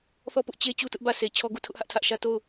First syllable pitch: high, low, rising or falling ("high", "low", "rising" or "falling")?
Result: falling